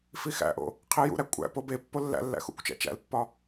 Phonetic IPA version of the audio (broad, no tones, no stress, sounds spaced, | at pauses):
f i x æ̰ ʔ o̰ | qʰ i j ṵ ɾ æ kʷʼ æ̰ p o b e pː o lː æ̰ lː æ̰ x ṵ kʷ t͡ʃ æ̰ t͡ʃ æ̰ l pː ɒ